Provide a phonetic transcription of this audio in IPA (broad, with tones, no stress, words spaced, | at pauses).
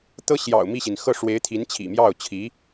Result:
t̪ɤ˥ɕjɑ̰˨˩ʊ̯mi˥˩ɕi˩n xɤ˥˩ʂwe˧˥ɪ̯t̪ʰi˧˥n t͡ɕʰḭ˨˩mjɑ˥˩ʊ̯t͡ɕʰi˧˥